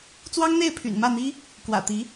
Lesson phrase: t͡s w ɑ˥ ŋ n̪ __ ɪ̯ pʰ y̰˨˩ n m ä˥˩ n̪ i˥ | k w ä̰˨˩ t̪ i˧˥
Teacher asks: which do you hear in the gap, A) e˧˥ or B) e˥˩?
B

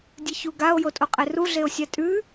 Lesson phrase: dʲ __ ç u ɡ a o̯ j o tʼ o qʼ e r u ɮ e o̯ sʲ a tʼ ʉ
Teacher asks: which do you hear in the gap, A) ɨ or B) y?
A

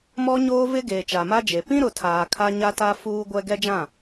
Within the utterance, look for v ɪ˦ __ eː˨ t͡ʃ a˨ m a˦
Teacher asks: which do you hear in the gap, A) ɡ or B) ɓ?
A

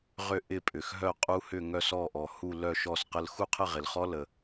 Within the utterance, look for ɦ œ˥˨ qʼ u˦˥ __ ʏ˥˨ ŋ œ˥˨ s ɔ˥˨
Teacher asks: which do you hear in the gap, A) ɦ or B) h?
B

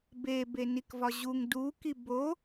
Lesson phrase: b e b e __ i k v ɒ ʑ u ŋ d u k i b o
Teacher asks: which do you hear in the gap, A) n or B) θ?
A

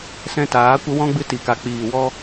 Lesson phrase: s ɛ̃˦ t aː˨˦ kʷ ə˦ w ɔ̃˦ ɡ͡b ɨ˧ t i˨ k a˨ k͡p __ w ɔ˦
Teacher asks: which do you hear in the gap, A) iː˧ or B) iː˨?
B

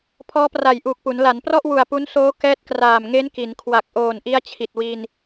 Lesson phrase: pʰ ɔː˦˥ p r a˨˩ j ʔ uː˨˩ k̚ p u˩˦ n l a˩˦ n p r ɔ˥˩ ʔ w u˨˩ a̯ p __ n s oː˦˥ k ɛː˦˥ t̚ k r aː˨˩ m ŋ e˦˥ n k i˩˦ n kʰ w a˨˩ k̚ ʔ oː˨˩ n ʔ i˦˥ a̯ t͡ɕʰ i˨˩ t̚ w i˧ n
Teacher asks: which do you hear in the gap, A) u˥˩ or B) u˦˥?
B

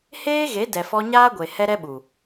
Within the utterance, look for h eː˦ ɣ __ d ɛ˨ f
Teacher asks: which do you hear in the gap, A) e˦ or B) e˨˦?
B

